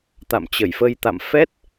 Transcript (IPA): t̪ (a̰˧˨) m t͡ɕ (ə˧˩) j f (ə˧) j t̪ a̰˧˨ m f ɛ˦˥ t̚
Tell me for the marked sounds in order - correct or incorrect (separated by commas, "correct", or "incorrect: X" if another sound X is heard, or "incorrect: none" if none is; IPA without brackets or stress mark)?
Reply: correct, correct, correct